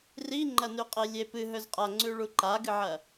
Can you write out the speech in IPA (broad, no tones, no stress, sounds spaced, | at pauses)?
r i ŋ͡ǃ ɐ n ʉ qʼ e lʲ e p ɨ ɦ ɵ z qʼ a ŋ͡ǀ ʉ ɭ u ǃ a ɡ ɨ ʕ ɐ